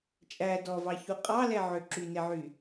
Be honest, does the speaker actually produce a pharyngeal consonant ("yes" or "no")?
yes